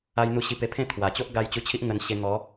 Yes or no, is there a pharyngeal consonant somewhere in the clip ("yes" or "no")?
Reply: no